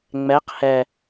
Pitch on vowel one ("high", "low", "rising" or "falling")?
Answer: rising